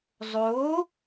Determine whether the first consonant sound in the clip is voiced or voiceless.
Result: voiced